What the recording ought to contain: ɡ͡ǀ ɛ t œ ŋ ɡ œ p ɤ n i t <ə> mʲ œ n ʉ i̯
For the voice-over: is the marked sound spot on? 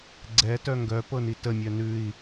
yes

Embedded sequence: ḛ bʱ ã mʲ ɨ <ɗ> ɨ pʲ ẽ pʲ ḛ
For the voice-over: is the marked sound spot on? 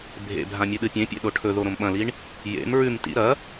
yes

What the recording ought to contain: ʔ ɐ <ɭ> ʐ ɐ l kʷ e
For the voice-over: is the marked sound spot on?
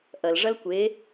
no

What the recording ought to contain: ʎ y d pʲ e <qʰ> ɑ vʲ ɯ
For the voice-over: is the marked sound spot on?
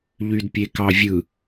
no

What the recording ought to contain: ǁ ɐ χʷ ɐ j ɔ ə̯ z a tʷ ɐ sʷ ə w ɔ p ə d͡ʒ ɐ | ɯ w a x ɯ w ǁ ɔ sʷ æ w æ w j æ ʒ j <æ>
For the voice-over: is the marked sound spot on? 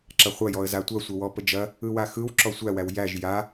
no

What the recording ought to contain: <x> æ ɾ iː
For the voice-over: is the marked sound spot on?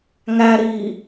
no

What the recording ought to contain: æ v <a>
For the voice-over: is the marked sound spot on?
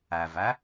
no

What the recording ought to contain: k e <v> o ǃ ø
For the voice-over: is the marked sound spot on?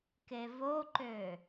yes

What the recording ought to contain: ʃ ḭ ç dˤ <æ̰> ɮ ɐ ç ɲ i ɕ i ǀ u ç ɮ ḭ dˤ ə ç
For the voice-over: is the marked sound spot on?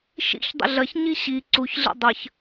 no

